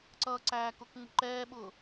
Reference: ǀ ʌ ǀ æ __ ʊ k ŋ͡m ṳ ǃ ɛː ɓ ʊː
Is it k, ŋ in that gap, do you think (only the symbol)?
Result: k